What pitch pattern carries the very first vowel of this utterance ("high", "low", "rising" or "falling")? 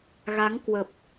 rising